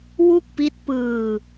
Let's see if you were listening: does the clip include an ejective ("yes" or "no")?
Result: no